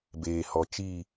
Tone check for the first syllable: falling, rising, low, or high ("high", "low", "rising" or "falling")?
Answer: low